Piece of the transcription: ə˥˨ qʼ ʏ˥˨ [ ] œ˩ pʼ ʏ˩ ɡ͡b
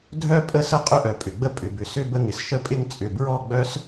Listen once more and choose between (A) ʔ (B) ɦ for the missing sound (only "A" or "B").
A